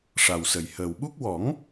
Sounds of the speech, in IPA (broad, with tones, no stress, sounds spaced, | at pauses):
ʂ a˨˩ w s ə˨˩ j h əː˨˩ w ɓ u˦˥ k̚ w ɔ˨˩˦ ŋ